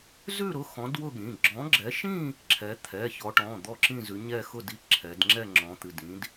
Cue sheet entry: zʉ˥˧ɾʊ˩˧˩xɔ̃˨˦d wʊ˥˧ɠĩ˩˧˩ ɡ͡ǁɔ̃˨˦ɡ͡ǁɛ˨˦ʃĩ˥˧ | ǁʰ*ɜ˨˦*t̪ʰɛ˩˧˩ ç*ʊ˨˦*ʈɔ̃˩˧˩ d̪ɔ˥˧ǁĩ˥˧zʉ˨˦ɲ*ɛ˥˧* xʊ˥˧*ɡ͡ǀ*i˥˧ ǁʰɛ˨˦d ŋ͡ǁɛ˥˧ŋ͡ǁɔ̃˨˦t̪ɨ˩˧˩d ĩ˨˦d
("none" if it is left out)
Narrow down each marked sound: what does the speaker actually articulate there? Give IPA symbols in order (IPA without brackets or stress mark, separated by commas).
ɛ˨˦, ɔ˨˦, ɛ˥˧, d